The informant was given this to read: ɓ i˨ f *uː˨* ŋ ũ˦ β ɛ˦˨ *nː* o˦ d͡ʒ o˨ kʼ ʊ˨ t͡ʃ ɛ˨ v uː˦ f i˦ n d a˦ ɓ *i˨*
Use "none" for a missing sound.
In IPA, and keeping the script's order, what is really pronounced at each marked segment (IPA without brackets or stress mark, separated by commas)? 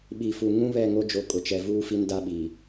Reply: u˨, ŋ, i˨